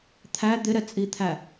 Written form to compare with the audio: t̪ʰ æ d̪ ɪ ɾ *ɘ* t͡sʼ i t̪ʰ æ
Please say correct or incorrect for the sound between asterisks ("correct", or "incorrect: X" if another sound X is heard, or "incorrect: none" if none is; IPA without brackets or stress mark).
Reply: incorrect: ɛ